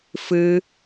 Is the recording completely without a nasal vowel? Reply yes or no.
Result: yes